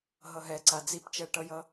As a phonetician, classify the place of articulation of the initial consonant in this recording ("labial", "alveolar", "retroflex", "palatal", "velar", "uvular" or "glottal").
glottal